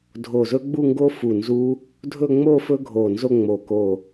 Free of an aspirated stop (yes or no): yes